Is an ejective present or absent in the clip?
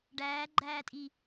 present